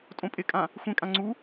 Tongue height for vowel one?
mid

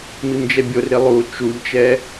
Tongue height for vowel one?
high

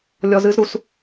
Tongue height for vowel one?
mid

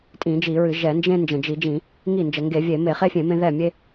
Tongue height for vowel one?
high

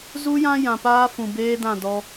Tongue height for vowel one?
high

